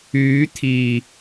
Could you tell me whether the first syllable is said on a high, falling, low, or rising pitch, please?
rising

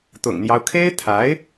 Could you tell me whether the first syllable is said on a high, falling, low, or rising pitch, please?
low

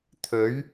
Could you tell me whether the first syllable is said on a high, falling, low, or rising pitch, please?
rising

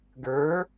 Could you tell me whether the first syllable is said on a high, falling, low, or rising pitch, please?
rising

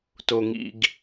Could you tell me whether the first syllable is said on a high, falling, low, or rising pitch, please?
low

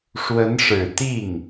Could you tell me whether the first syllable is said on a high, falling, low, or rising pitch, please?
rising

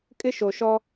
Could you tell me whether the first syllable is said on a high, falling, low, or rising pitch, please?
high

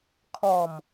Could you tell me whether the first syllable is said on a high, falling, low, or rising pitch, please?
low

